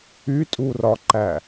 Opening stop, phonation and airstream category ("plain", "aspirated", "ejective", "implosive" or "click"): ejective